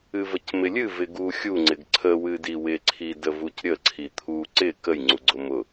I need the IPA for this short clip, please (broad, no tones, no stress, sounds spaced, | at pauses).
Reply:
ɨ v ə c m ɪ lʲ ɨ v ɪ ɡ u xʲ u ŋ͡ǀ ɪ ɡ ǀʰ ə w ɨ d i w ɪ ǀʰ i d ə v u c ɾʲ ə ǀʰ i t̪ʰ u ǀ ɪ k ə j ŋ͡ǀ u ɡ͡ǀ ʊ m ʊ